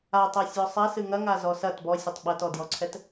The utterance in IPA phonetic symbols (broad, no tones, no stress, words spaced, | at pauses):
a tˤesʲɔsˤɛ sɨŋɐŋa zɔsɐt bɔsʲɐtˤ ɓɐtɔdjɔǀʰɛt